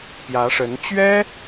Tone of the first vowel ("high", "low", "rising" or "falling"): rising